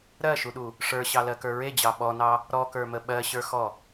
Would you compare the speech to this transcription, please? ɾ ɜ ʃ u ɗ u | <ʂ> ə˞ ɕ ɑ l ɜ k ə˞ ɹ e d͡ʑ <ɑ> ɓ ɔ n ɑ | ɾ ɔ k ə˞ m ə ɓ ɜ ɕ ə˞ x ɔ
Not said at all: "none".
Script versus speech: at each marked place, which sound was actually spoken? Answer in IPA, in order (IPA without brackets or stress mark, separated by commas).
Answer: ʂ, ɑ